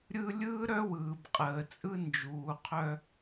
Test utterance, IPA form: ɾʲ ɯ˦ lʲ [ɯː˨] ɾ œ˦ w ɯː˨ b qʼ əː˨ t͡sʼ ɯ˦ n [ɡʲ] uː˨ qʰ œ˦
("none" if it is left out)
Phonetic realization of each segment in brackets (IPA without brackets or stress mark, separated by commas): ɯː˦, d͡ʒ